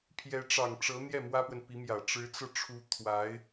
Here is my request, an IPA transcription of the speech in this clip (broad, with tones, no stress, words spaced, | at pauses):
pʰjɛ˧˥ʈ͡ʂɑ˨˩ŋʈ͡ʂɤ˧˥n̪jɛ˥˩ mwä˥pwə˨npi˧˥mjä˨˩ ʈ͡ʂɻ̩˧˥t͡sɤ˧ʈ͡ʂʰu˧˥ t̪ʰwa˧˥ɪ̯